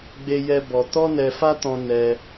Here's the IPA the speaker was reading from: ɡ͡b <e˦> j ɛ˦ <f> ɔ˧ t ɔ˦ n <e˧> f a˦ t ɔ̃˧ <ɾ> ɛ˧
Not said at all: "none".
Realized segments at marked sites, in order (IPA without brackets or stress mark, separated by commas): e˦, b, ɛ˧, n